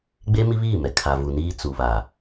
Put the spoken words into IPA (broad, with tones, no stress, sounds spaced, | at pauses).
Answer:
ɡ͡b e˦ m i˦ β iː˦˨ m ɛ˨ kʰ a˨ v u˨ n iː˦ t͡s u˨ β a˨